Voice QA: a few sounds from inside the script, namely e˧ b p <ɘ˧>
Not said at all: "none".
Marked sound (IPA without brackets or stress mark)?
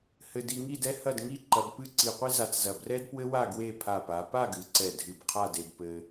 ɘ˧